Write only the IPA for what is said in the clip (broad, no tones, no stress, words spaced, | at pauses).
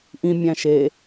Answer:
ʔĩmʲæ̃ ʃe